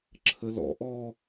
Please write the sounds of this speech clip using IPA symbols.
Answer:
ǁʰ ə l ɔ̰ ʔ ɔ

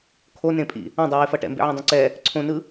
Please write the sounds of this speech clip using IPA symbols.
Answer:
kʰ o n ẽ pʼ ḭ | ã dˤ ɯ w e f ʌ ʈ ɛ̰ m b ḛ ʕ ẽ dˤ õ ǀ ɛ | ǀʰ õ n ɯ

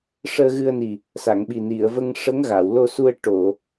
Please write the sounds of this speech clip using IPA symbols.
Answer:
ʂ əː˧ ɣ ɨ˧ ə̯ n i˨˩ | s a˨˩˨ ŋ ɓ i˨˩ n i˨˩˨ ə̯ v ə˧ ŋ ʂ ə˧˥ ŋ ɣ a˨˩˨ w l o˧ s u˧ ə̯ ʈ o˨˩˨

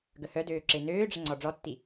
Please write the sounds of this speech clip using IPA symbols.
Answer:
ɡ ə h œ d øː ǁ e n øː ɖ͡ʐ ə ŋ͡ǀ ɔ ɖ͡ʐ ɔ tː i

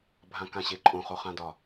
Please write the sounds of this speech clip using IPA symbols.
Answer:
bʱ ã k ã ɕ e ǃʼ õ χ o χ ã d ɒ

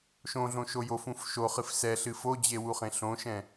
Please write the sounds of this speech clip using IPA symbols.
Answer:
ʃ õ ɮ õ ʃ o j o f ũ f ʃ o χ ɨ f s ɛ ɬ ɨ f o d͡ʑ e w u χ ẽ ɬ õ ʃ ɛ̃

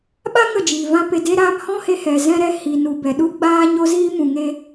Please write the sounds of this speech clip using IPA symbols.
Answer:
ɓ a˦ ŋ ə˦˨ d͡ʒ iː˨ v ã˦ p e˧ d e˦ ɾ aː˦ m h ɔ̃˦ h e˧ h ɛ˨ z ɛ̃˧ ɾ ɛ˧ h i˨ n u˨ b ɛ˨ ɗ u˦ ɡ͡b aː˦ ɲ o˦ z iː˦ m ũ˨ ŋ e˧

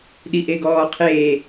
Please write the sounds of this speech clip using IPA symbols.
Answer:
ɗ i ʔ e ɡ ɔː qʰ eː

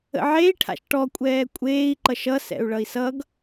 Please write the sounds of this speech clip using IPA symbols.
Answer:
ə̰ ʕ e i̯ ʈʰ a̰ ʃ ʈ ɔ kʷʼ ɛː kʷʼ eː i̯ ǃ ʌ ʃ ʌ s ɛ̰ u̯ ɭ ʌ i̯ s ʌ ɡ

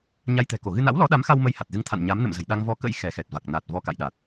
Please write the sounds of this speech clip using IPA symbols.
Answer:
ɲ a˧ j t̪ ɛ̤˨˩ k o˧˩ ɣ ɨ˧ n a̰˧˥ w l ɔ˨˦ ɗ a˨˦ m x a˧ w m ə˧ j h a˨˩ t̚ z ɨ˧ ŋ t̪ʰ a̰˧˨ n ɲ a˨˦ m n ə̰˧˨ m z ə̤˨˩ j ɗ a˧ ŋ v ɔ˨˦ k ə̰˧˥ j x ɛ˨˦ x ɛ˨˩ t̚ v a˨˩ k̚ n a˨˩ t̚ v ɔ˧ k a̰˧˨ j ɗ a˨˩ t̚

